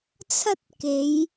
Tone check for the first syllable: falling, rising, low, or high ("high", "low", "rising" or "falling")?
high